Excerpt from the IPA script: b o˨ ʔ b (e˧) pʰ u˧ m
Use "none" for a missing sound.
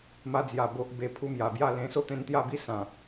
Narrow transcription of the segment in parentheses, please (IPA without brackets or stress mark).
e˧